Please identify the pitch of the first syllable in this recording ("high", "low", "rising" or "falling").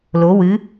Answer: rising